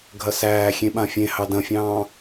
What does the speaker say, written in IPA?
ɡʱɐsæːxʲẽ ɓãfʲẽ hɑdɐ̃fʲɑ̃ː

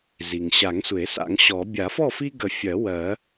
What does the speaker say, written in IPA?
zi˩ŋɕa˨˩˦ŋsʷe˨˩˦ sa̰˨˩˦ŋɕɔ˨˩˦ bʲa˨˩˦fɔ˥˨fi˦ɡə˨˩˦ fʲɜ˨˩˦ wɜ˨˩˦

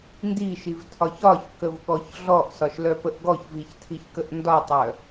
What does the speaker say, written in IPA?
ndiʃivtʰɒç ɒçkəvɠɔç ɮɔʔsɒʃlœpəʔ ɡɔçviçtʰiçkəʔ ndɒtˤœ

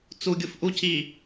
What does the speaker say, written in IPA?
t͡suɡʲuf ʔuciː

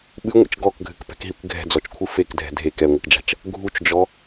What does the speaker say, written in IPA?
ɓɨŋʷḛt͡ʃ ɡɔkɡʱɘkpɛ̤kɦikʷ ɡʱɛ̤d͡zɔt͡ʃkʷʰɨ fekdʱɛ̤ dʱek ɛŋʷɨkd͡ʒa̤t͡ʃ | ɡʱut͡ʃd͡ʒɔ

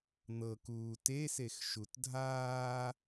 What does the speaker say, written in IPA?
n̪ɤ kuːtesex ʃutdʱaː

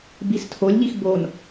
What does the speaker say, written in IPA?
bistʰolʲʎix bon

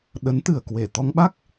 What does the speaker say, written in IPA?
ɗə˨˦nt̪ɨ˨˩ə̯kwe˧˩ t̪ɔ˧ŋɓa˦˥k̚

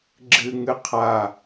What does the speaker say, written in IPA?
ɡ͡ǁɨŋɨ qʰa

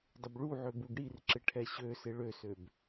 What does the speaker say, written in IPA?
dˤɪbɭuʕø buɡɽirǁɪ ʈʰɛɕøsɪ ɭøsøb

